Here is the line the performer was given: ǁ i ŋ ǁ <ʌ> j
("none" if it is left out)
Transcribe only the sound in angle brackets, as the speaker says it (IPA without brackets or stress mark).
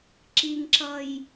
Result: ʌ